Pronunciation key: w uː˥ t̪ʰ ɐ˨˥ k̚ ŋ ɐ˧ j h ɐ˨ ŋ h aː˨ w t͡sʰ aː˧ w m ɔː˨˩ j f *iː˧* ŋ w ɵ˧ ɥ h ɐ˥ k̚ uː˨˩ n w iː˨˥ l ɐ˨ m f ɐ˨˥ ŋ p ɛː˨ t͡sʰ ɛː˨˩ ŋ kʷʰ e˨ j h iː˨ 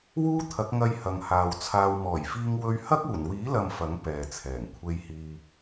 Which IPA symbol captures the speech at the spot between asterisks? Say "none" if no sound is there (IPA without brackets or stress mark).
iː˧